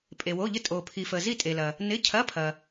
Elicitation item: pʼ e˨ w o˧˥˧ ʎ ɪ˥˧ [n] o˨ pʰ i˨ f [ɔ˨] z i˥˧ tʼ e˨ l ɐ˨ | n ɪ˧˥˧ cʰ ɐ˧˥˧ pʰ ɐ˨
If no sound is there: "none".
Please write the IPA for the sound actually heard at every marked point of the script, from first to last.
tʼ, ə˨

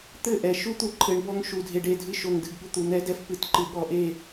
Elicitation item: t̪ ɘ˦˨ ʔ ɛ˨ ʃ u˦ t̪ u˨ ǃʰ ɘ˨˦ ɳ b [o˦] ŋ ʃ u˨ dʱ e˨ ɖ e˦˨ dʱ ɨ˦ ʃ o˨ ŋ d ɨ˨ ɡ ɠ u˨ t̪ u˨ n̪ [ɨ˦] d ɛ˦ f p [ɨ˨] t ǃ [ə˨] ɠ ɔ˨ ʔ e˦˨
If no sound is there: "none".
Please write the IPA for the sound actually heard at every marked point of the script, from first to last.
ɔ˦, ɛ˦, ɨ˨, ɨ˨

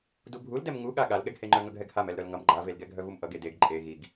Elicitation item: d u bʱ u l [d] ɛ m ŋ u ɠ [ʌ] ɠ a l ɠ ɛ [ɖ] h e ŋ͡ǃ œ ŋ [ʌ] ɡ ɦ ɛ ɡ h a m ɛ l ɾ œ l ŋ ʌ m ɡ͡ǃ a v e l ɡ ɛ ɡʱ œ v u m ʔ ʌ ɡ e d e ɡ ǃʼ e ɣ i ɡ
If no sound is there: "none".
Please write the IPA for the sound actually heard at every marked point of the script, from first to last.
d, a, ɡ, ʌ

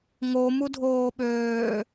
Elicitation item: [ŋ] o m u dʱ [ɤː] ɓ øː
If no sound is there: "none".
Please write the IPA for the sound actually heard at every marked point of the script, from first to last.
ŋ, oː

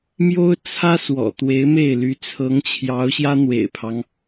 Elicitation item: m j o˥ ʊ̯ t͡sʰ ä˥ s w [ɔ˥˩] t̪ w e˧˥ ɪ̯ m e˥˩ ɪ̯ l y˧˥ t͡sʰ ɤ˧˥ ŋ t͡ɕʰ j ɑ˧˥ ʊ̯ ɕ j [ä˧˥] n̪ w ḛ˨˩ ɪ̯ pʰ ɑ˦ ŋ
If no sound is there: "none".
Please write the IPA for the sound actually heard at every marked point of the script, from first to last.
ɔ̰˨˩, ä˥

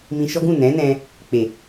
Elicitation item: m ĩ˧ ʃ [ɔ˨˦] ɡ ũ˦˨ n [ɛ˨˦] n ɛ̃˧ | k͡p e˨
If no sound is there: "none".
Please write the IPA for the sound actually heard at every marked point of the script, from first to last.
ɔ˦, ɛ̃˨˦

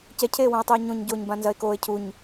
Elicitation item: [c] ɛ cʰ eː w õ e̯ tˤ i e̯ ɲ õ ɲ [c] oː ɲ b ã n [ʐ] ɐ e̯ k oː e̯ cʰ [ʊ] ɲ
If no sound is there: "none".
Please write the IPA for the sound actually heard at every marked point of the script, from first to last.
c, ɟ, z, u

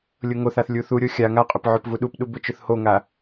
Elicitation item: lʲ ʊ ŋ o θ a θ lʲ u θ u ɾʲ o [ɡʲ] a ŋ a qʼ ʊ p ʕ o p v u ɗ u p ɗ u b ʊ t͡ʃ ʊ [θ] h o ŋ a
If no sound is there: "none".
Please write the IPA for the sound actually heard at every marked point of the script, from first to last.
xʲ, θ

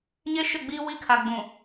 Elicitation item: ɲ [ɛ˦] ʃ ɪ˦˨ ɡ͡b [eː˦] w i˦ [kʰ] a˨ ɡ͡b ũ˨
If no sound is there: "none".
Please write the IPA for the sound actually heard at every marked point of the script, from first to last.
e˦, iː˦, kʰ

